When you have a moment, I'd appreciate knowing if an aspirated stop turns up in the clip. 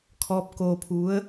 yes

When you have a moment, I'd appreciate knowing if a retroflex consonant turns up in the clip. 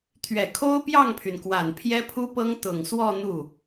no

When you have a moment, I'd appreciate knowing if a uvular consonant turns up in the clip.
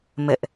no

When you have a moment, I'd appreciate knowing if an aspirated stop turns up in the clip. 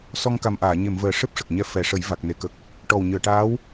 no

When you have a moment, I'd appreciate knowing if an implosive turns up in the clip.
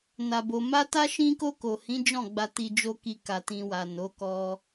no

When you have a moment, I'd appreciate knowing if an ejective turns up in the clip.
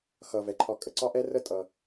yes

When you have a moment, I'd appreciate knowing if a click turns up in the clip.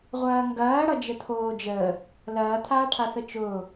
no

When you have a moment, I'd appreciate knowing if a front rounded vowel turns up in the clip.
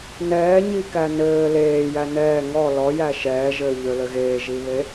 yes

